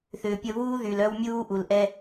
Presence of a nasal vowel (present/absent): absent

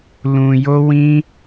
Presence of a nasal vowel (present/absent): present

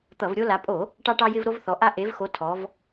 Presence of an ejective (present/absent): present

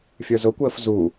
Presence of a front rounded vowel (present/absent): absent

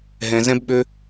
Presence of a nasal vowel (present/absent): present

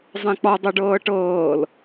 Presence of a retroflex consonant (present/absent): present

